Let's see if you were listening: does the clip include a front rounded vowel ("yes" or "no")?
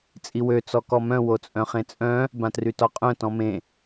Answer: yes